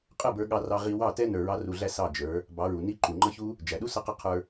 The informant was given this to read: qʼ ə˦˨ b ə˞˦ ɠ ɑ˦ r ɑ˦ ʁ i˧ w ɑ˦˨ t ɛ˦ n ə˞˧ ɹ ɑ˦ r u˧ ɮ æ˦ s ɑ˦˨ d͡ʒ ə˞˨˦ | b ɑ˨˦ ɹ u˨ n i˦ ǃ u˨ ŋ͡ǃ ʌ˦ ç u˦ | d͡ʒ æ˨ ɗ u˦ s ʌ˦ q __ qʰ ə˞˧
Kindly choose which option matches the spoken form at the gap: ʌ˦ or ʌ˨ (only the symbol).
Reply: ʌ˦